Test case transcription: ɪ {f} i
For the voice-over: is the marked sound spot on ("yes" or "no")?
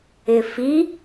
yes